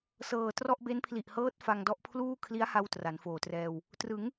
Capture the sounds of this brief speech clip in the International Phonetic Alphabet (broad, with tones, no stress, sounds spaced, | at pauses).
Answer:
s ɤː˨˩ t r ɔ˥˩ ʔ b e˦˥ n pʰ l i˨˩ ʔ h ɤː˦˥ t̚ f a˧ ŋ d ɔ˦˥ ʔ pʰ l uː˥˩ kʰ l i˦˥ a̯ h a˧ w t r a˩˦ n f oː˨˩ t r ɛː˧ w | t r ɯ˩˦ ŋ